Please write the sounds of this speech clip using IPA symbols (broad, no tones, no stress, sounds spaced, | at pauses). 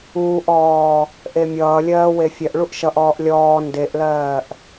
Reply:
uː ʔ ɔː | ʔ e mʲ ʌː lʲ ɜː w e fʲ ɜ ʔ ɭ u ʔ ʃ ʌ ʔ ɔː ʔ lʲ ɔː n d e ʔ l ɜː ʔ